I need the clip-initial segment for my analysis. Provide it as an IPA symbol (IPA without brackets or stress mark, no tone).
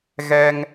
ɣ